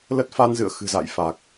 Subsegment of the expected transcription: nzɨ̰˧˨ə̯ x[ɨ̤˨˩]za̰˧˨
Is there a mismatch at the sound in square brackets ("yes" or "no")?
no